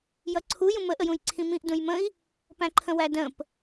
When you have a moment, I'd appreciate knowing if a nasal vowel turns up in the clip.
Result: yes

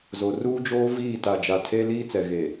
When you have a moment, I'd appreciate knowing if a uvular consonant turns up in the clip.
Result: no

